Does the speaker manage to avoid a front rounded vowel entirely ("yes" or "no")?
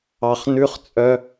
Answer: no